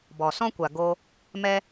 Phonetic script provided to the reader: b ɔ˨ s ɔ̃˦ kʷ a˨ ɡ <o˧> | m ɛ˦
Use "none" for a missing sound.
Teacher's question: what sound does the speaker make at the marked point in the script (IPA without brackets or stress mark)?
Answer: o˧